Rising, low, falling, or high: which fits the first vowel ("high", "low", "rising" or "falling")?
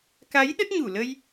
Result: rising